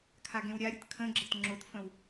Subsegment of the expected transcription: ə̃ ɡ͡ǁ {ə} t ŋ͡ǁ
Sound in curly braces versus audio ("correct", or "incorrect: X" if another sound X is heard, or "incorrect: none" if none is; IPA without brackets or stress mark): correct